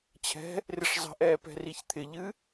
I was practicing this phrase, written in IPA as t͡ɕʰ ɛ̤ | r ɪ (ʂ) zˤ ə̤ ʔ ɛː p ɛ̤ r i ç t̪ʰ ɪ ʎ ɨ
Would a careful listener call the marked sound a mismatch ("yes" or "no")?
no